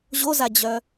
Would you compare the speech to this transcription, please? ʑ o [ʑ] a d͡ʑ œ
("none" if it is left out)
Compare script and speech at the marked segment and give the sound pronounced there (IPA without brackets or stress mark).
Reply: z